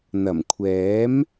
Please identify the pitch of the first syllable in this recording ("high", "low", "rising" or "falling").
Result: low